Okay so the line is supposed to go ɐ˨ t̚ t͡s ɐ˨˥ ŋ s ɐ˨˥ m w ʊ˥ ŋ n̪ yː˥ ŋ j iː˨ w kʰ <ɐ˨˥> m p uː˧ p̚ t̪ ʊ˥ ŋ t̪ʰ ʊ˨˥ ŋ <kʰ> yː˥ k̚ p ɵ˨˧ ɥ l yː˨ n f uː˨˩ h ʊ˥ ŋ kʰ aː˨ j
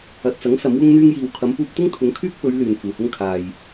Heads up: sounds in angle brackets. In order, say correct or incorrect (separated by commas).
incorrect, correct